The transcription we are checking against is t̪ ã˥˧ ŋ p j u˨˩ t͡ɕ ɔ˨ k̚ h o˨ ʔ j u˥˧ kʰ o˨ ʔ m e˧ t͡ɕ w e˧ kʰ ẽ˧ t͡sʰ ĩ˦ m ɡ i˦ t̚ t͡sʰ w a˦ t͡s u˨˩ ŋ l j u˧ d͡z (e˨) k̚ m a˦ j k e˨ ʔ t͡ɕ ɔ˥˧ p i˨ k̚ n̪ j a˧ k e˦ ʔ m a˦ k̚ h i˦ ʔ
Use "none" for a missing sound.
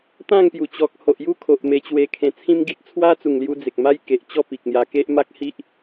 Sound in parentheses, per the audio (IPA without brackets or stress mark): e˨